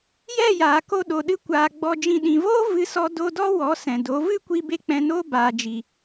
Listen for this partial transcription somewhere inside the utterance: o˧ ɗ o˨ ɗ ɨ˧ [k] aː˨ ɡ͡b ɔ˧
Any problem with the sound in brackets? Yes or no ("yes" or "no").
yes